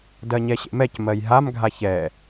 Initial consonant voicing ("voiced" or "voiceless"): voiced